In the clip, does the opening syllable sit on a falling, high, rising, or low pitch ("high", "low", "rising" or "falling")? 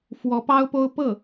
rising